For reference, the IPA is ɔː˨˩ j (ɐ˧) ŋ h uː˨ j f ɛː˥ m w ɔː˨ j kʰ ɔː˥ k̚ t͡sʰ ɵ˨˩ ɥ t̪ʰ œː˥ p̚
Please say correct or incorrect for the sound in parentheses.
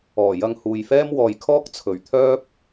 correct